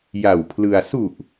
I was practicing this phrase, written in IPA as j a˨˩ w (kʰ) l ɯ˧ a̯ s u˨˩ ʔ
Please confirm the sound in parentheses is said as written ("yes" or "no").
no